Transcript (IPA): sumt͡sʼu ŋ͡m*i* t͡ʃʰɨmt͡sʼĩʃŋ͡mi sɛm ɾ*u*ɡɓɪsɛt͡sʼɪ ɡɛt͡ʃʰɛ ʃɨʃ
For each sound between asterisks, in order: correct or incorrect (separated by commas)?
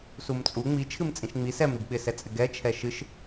correct, correct